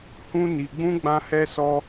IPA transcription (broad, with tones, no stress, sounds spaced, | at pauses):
h ũ˦ n i˧ ɡ͡b ũ˦ ɡ͡b ã˦ h ɛ˦ s ɔ˦